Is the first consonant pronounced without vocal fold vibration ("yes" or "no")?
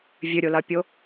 no